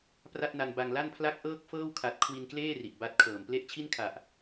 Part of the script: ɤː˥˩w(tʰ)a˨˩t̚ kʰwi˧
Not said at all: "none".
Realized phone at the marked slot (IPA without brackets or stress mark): kʰ